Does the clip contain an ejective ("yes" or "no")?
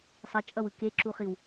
yes